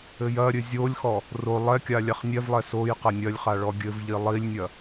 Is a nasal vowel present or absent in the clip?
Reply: absent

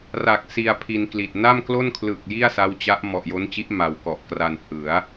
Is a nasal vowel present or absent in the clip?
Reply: absent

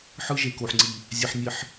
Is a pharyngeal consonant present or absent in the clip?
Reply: present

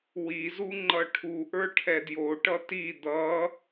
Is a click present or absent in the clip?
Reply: present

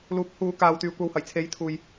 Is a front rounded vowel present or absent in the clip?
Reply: present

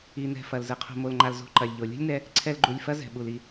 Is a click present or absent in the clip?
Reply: present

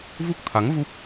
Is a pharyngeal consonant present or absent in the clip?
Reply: absent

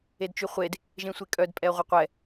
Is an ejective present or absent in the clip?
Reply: present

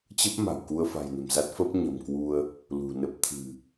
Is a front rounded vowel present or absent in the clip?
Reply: absent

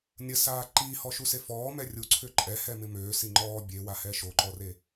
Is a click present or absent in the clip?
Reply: present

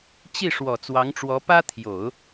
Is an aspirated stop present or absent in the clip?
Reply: present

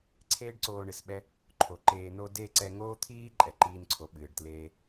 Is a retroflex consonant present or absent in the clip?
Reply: present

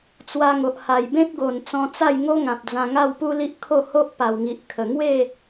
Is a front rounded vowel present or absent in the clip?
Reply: absent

